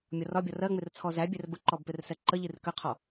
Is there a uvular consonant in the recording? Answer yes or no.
yes